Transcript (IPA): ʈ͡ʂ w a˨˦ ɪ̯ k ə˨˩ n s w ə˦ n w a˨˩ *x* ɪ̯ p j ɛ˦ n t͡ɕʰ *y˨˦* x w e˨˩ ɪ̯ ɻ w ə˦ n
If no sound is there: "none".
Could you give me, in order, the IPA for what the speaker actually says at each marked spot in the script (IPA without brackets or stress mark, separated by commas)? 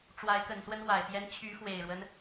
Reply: none, y˨˦